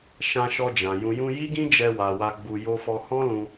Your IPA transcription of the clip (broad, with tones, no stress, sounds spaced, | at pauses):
ʃ ã˧ ʃ ɔ˧ d͡ʒ ã˨ j ũ˨ j ũ˧ j i˦ ɡ ĩ˦ d͡ʒ ɛ˧ w a˨ w a˧ ɡ͡b u˧ j o˧ f ɔ˧ h ɔ̃˦ l ũ˧